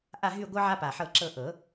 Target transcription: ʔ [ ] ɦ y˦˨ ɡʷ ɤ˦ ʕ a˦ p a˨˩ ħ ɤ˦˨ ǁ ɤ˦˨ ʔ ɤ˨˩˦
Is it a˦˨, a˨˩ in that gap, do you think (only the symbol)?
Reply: a˦˨